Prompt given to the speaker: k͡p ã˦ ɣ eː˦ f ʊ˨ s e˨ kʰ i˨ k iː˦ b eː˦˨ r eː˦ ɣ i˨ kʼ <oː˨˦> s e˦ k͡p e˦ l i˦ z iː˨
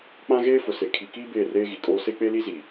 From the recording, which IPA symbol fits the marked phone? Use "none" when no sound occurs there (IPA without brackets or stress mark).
oː˦